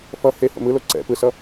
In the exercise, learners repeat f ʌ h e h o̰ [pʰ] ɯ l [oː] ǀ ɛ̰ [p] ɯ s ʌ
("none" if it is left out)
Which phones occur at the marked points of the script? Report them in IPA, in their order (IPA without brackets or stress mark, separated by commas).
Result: m, o, p